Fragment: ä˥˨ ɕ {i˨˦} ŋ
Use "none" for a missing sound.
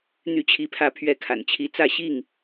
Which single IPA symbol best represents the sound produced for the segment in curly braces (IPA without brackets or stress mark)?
i˥˨